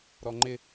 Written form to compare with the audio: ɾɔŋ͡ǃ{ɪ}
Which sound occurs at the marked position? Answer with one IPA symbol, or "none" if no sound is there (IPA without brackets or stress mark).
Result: ɪ